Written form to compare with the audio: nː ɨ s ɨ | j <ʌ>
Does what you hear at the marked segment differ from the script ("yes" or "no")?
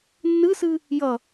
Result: no